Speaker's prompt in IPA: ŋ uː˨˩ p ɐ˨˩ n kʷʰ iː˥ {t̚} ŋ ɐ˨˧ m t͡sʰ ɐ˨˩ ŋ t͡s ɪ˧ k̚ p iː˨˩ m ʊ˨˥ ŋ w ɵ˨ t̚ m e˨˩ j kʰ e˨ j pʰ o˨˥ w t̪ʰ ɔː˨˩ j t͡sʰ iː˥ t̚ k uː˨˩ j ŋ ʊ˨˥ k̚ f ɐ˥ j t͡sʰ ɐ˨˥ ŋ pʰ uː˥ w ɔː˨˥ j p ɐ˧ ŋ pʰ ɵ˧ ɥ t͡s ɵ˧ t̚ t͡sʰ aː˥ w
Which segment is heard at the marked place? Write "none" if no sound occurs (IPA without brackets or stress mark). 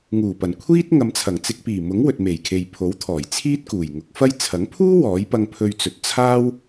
t̚